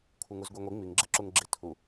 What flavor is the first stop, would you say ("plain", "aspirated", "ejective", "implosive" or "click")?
aspirated